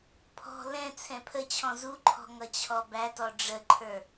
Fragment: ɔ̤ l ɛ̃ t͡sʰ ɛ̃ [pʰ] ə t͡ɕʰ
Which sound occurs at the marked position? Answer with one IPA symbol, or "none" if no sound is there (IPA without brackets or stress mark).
pʰ